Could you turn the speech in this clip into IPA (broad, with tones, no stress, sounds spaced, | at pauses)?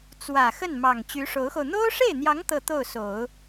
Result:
t͡s w ä˨˩ x ə˥˩ n m ɑ˨˩ ŋ t͡ɕ y˧˥ ʂ o˧˥ ʊ̯ x o˧ ʊ̯ n̪ o˥ ʊ̯ ʂ e˥˩ ɪ̯ n̪ j ɑ˧˥ ŋ t̪ ɤ˥˧ t̪ o˥˩ ʊ̯ s o˨˩˦ ʊ̯